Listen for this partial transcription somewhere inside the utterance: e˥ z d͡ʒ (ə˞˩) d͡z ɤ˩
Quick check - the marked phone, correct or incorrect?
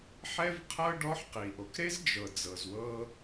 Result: incorrect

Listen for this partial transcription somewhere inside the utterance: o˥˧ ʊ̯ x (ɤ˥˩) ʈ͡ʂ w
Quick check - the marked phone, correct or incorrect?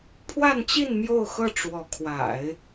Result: correct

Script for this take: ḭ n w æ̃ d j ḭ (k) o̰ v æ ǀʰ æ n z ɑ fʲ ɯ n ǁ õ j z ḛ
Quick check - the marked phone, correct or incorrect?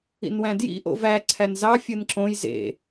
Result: incorrect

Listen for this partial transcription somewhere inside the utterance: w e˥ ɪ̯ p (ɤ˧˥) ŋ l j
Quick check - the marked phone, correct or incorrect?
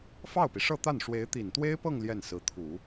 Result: incorrect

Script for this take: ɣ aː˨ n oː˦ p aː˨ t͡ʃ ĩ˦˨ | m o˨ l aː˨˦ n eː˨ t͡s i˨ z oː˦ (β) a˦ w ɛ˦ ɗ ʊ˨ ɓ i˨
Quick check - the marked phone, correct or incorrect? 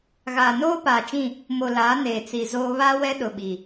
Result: correct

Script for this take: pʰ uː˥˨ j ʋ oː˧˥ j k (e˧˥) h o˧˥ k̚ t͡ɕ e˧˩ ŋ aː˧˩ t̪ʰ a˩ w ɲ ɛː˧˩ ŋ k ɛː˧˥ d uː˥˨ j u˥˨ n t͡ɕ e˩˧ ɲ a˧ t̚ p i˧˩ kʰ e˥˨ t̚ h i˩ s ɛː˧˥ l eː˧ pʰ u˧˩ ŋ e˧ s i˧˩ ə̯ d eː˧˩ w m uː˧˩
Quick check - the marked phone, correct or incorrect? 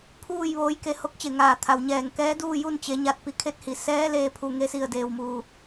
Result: incorrect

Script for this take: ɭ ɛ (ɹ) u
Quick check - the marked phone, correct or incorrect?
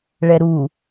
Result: incorrect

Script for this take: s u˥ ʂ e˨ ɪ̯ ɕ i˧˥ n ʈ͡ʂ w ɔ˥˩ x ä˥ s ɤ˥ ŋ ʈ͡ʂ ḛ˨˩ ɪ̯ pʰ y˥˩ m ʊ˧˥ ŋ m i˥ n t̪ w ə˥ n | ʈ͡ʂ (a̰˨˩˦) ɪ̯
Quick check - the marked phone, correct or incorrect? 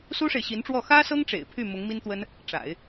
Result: correct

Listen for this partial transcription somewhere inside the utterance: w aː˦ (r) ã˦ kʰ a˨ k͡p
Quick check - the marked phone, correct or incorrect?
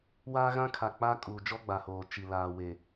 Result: incorrect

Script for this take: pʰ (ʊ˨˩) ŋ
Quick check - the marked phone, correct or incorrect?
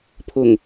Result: correct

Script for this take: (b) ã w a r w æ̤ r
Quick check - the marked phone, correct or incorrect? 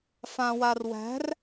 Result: incorrect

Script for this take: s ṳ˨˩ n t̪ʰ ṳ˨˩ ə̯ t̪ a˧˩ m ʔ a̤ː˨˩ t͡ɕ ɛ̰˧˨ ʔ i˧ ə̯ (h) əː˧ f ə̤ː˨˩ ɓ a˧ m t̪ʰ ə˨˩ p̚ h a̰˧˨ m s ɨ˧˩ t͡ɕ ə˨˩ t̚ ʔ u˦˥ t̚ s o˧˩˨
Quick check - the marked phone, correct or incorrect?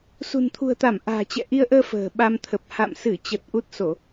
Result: incorrect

